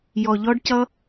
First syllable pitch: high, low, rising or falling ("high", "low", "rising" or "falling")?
low